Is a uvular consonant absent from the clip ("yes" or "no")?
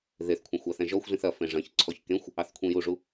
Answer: yes